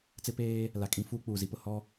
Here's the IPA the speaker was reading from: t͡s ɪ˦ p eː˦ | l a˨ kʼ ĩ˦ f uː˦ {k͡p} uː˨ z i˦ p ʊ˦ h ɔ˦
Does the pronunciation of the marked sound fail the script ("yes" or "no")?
no